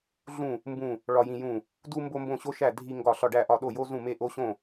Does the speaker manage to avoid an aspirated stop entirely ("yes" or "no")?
yes